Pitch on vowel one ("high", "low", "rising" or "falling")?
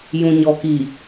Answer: low